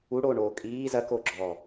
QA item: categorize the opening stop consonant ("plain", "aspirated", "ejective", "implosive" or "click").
ejective